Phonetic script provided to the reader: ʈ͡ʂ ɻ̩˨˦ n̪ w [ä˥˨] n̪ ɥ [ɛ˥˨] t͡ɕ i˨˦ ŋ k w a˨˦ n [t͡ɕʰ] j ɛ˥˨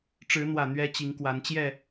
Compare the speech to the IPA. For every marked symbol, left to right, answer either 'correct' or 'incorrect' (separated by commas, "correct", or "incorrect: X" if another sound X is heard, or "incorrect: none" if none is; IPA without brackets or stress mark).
incorrect: ä˨˩, incorrect: ɛ˦, incorrect: t͡ɕ